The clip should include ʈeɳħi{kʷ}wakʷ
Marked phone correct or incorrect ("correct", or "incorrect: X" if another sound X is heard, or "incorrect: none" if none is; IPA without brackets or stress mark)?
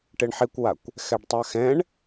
correct